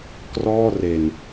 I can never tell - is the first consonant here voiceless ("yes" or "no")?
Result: yes